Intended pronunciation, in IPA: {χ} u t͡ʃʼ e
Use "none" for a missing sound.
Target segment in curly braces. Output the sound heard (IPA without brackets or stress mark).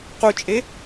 q